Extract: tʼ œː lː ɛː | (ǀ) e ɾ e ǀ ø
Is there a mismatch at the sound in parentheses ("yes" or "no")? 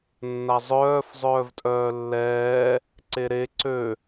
no